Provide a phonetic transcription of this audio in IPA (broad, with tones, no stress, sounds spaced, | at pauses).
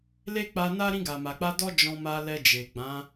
l e˦ k͡p a˧ n a˦ ɾ ĩ˧ ɡ a˨ m a˨ k͡p a˧ d ɔ˦ d͡ʒ ɔ̃˧ m a˧ l ɛ˧ d͡ʒ e˨ ɡ͡b ã˨˦